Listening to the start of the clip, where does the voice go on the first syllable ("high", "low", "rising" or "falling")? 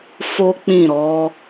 high